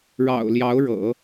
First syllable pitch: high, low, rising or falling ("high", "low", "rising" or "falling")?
low